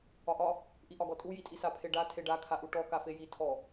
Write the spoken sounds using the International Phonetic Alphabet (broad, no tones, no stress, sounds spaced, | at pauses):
ɒ ʔ ɒ | ʔ i ʔ ɒ ɡ ɔ tʼ u j i tʼ i s a pʰ e ɖ a tʰ e ɖ a kʰ a ʔ u ʈ ɔ k a f e j i tʰ ɔ